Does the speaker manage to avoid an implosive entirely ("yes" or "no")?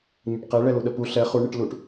no